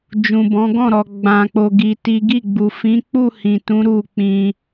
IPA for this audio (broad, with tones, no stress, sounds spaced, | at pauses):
d͡ʒ ũ˨ b ɔ̃˨˦ ɡ ɔ̃˦˨ ɾ ɔ˨ ɡ͡b ã˧ k͡p o˧ ɡ i˧ t i˦ ɡ i˦˨ ɡ͡b u˨ f ĩ˨˦ k͡p u˦˨ h ĩ˨ t ũ˨˦ ɾ u˦˨ k͡p ĩ˧